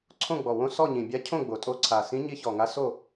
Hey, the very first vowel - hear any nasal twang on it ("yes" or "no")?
yes